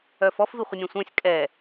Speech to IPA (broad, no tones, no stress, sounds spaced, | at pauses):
œ f ɔ f v i χʷ ə nʲ ɛ̃ sʷ œ̃ sʲ kʼ ɛ